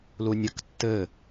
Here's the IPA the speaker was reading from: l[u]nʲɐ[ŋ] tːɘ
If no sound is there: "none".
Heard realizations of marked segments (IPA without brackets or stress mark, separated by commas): u, k